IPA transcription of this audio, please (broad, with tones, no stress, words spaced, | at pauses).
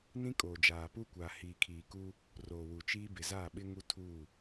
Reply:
nĩ˦kʼoː˨d͡ʒaː˨pu˦ kʷaː˨hiː˨ kʰiː˨ku˦ | roː˨wu˨t͡ʃiː˦ bɪ˨za˦˨ɓɪ˦ŋu˦ tʰuː˦˨